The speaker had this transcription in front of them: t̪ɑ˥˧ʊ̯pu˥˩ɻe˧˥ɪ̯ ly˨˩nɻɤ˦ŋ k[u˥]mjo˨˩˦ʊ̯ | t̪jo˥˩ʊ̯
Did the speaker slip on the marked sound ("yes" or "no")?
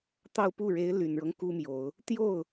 no